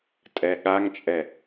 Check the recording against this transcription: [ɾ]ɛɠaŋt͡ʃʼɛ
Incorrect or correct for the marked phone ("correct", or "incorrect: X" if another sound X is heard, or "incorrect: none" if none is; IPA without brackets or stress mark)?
incorrect: tʼ